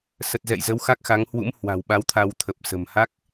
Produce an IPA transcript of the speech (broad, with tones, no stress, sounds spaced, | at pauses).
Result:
s ə˨˩ t̚ z ɛ̰˧˨ j z ə˨˦ w x a˦˥ k̚ x a˨˦ ŋ h w ṵ˧˥ m h w a̤˨˩ w ɓ a˨˦ w t̪ʰ a˧ w t̪ʰ ə˨˩ p̚ s ə̤˨˩ m h a˦˥ k̚